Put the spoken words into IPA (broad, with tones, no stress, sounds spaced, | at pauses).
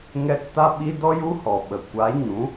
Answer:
ŋ ɛ˧ k t a˦ ɓ i˦ d ɔ˦ j u˦ h ɔ˨ ɓ ə˨ kʷ a˨˦ ɲ ũ˨˦